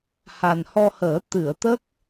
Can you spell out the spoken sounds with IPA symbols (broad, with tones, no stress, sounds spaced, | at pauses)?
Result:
h a˨˩ n h ɔ˧ h əː˨˩˦ t̪ ɨ˨˩˨ ə̯ t̪ ə˦˥ k̚